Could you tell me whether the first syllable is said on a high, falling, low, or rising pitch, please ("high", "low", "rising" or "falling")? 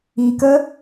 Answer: low